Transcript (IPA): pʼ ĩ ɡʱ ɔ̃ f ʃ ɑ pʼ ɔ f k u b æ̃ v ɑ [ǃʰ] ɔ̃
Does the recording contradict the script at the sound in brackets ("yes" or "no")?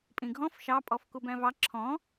yes